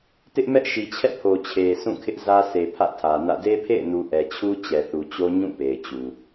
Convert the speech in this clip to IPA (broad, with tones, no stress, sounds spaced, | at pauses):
t ɪ˦ ʔ m ɛ˦ ʔ ʃ i˨ t͡ɕʰ ɛ̰˦˨ pʰ o˨ t͡ɕʰ e˨ s ũ˦˨ kʰ ɪ˦ ʔ z ä˦ sʰ e˨ pʰ ä̰˦˨ tʰ ä˨ n ä̰˦˨ d e˦ pʰ ḛ˦˨ ɪ̯ n u˨ ʔ ɛ˨ t͡ɕʰ u˦ t͡ɕ ɛ˨ θ u˨ t͡ɕ o˦ ɲ ũ˦˨ p e˨ ɪ̯ t͡ɕ u˨